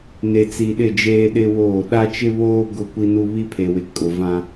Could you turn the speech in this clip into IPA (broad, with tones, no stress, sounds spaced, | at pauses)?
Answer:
n e˨ t͡s i˨ ɗ ɪ˦˨ d͡ʒ eː˦ ɗ ɪ˦ w oː˦˨ ɗ a˦ t͡ʃ ɪ˦ β oː˦ ɡ ʊ˦ kʷ i˦ n u˦ β i˦ pʰ e˨ w ɪ˨ kʼ ʊ˨ v ã˦